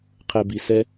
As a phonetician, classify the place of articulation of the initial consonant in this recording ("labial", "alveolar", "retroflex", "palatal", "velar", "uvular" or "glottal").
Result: uvular